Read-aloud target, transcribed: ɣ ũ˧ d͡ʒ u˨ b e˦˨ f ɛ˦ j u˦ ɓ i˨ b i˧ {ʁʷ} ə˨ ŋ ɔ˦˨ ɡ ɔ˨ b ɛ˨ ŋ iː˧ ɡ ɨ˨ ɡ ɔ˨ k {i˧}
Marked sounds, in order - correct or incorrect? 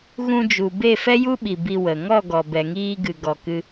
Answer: incorrect: w, incorrect: ɨ˧

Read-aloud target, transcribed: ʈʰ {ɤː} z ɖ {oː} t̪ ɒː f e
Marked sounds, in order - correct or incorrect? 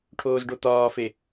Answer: incorrect: oː, incorrect: o

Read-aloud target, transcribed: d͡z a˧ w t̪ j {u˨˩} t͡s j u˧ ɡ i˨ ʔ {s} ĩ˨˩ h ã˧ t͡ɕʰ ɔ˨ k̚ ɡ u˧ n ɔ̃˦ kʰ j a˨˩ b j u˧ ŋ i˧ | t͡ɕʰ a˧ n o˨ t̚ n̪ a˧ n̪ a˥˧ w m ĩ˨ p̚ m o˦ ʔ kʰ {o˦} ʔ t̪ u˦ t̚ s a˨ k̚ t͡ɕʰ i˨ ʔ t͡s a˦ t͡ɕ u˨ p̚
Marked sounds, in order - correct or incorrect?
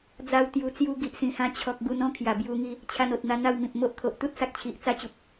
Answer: correct, correct, incorrect: o˨

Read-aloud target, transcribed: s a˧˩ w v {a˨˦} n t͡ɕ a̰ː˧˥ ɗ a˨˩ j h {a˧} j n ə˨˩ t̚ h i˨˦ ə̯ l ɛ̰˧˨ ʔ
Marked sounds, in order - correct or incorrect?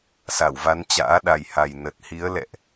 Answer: correct, incorrect: a˨˩

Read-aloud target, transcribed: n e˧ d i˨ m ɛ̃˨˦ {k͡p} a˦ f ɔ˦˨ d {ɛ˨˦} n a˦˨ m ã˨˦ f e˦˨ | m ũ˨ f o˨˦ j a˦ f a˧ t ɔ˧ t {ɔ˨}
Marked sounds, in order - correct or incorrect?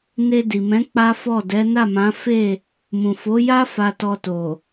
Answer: correct, correct, incorrect: o˨

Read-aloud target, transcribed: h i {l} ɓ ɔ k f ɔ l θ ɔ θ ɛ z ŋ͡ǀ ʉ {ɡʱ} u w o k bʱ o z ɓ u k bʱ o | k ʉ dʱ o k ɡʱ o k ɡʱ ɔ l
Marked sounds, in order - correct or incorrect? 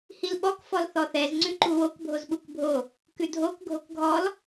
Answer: correct, incorrect: ǃ

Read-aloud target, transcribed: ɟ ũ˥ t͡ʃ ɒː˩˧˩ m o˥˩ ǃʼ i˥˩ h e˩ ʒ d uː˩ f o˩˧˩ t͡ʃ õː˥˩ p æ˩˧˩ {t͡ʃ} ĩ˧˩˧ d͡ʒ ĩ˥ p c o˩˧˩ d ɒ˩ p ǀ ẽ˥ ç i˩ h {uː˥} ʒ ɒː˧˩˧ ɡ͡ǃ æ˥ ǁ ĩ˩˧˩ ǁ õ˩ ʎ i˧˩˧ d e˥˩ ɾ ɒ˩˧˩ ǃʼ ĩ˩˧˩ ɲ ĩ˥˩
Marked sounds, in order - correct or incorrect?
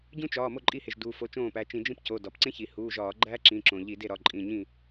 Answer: correct, incorrect: uː˩˧˩

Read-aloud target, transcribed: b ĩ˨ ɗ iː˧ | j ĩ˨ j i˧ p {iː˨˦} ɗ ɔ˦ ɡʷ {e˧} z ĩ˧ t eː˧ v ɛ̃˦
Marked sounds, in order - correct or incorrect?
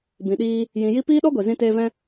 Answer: incorrect: iː˦, incorrect: e˨

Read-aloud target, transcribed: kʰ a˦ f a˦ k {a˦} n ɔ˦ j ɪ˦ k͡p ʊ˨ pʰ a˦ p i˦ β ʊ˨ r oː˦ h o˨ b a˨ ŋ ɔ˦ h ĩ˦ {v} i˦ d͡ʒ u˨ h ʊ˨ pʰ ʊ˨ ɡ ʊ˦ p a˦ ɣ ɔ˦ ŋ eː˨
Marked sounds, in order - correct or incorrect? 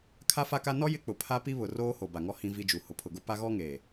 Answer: correct, correct

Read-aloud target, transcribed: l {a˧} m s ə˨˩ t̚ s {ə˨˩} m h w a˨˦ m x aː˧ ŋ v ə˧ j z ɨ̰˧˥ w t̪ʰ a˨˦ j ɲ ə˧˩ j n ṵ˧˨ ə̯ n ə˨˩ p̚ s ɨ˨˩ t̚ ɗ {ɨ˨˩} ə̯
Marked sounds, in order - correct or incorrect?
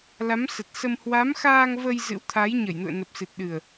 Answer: incorrect: a˨˦, incorrect: ə˧, correct

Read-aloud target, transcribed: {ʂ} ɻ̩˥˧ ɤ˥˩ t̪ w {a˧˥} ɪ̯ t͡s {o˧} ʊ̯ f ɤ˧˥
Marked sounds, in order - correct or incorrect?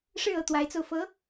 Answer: correct, correct, correct

